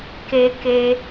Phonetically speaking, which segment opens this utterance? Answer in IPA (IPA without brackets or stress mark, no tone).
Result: k